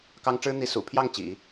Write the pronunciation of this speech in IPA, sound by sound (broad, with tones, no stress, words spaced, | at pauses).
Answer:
kɑ˥ŋ ʈ͡ʂɻ̩˥ n̪i˥ sṵ˨˩pʰjɑ˥˩ŋ t͡ɕḭ˨˩˦